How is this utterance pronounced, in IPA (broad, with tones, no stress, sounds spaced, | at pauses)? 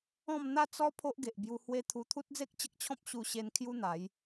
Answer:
ɔ̃˥˧ m n̪ a˥˧ t͡s ɔ˦ pʰ o˦ ʔ ɡ e˨ ʔ b j u˧ h w e˦ t̪ʰ u˧ t̪ʰ u˦ t̚ d͡z e˦ k̚ t͡ɕ ə˦ k̚ t͡ɕʰ ɔ̃˦ p̚ ɕ u˧ ɕ e˧ n kʰ j u˦ n̪ a˨˦ j